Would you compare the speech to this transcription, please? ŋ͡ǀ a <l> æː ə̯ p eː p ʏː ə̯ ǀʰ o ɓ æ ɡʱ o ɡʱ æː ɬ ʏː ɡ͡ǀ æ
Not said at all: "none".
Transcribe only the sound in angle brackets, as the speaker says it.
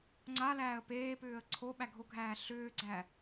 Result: l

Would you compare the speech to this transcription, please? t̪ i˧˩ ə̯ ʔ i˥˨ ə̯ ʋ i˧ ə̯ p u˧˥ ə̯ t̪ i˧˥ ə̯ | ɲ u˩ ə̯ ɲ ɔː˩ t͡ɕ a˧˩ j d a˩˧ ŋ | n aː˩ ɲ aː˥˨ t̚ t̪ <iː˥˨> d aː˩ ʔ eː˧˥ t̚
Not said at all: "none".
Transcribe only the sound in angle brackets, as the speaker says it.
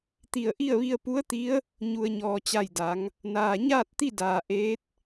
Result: i˥˨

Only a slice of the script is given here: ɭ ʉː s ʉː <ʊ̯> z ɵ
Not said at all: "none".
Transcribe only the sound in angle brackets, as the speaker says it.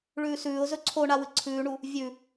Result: ʊ̯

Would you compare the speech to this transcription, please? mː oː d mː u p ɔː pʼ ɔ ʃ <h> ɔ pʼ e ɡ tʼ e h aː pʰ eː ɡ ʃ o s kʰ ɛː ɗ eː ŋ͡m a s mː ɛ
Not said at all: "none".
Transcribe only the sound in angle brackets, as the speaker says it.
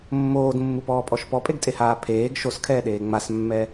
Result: p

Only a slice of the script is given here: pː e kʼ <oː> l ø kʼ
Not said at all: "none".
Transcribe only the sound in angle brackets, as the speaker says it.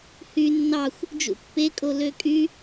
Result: o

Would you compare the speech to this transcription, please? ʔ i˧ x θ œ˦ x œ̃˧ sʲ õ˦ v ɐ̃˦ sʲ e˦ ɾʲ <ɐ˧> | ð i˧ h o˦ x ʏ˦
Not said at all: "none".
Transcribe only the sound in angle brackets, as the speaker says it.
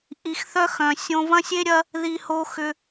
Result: ɐ˦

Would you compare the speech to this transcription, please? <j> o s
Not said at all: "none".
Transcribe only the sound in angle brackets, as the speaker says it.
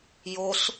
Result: j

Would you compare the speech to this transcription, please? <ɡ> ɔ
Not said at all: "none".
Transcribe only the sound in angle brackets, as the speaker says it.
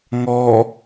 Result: ŋ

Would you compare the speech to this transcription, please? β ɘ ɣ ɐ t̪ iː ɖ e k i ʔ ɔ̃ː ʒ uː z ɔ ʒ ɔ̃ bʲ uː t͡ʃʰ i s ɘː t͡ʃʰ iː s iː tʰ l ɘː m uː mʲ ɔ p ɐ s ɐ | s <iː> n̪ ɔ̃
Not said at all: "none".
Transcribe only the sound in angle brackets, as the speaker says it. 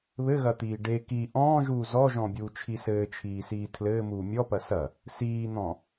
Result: iː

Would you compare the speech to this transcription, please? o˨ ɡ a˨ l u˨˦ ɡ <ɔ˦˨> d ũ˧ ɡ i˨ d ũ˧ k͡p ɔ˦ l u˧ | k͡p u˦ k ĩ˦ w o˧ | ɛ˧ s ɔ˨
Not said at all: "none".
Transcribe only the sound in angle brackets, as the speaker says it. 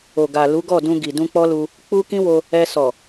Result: ɔ˦˨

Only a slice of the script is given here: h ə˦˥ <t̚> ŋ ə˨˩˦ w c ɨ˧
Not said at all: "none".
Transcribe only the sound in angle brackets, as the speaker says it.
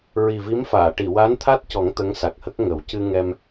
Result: k̚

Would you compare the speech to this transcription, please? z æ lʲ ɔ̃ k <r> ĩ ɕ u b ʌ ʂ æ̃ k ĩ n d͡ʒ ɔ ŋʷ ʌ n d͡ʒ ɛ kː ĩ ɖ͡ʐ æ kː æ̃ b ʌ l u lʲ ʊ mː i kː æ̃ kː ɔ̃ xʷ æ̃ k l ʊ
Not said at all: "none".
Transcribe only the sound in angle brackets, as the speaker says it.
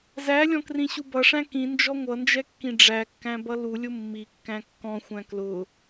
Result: r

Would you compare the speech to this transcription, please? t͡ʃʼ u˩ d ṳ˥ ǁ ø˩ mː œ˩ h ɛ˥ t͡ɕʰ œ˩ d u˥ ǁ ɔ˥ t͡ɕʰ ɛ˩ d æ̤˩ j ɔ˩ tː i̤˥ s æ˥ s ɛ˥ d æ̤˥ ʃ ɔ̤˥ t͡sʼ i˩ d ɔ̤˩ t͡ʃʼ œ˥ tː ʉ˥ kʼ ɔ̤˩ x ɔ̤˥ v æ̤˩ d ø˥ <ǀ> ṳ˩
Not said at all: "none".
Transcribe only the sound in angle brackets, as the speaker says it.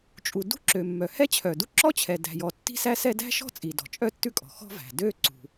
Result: ǀ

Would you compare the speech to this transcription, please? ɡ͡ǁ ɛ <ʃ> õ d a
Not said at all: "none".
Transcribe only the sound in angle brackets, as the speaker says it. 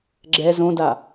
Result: z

